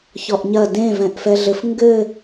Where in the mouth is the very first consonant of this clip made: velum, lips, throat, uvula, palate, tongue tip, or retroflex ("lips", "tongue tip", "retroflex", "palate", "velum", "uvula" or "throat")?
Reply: palate